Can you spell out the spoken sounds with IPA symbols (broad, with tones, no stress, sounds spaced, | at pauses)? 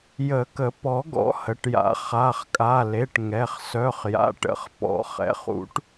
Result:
j ə˨˩˦ k ə˨˩˦ p ɔ˨˩˦ ɡ ɔ̰˨˩˦ h ə˩˧˩ ʈ j a̰˨˩˦ χ a˩˧˩ χ kʼ a˩˧˩ l e˩˧˩ ʈ ŋ ɛ˩˧˩ χ s œ˩˧˩ χ j a̰˩˧˩ ʈ ə̰˩˧˩ χ p ɔ̰˨˩˦ χ ɛ̰˩˧˩ χ ṵ˨˩˦ ʈ